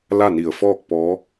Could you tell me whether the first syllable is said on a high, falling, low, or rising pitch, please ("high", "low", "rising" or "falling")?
falling